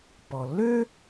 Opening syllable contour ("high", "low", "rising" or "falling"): low